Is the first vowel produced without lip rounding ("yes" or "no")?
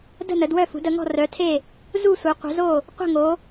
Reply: yes